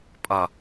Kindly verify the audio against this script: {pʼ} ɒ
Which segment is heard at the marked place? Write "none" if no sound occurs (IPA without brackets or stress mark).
pʼ